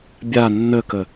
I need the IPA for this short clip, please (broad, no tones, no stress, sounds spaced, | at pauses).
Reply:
bʲ a nː ə k ə